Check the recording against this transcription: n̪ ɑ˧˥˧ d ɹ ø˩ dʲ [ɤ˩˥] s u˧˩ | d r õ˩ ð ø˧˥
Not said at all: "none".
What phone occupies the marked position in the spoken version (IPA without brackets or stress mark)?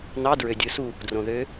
ɯ˩˥